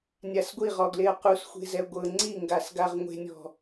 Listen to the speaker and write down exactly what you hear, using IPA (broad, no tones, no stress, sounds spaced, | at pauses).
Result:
nʲ a s ɡʷ i ʁ ɔ ɡ l e ɐ̯ q u s xʷ e̤ z ɛ ɡʷ ɤ ŋ͡ǀ i ŋ ɡ a s ɡ a ʁ ŋʷ e̤ nʲ ɔ̤